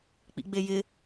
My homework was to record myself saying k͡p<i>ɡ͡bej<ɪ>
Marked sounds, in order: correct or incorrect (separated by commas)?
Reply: incorrect, correct